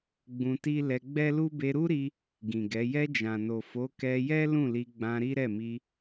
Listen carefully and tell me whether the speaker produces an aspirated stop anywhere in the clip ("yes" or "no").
no